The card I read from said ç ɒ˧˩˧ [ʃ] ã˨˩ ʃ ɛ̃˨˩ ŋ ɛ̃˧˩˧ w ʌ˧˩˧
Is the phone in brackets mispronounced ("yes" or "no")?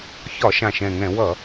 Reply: no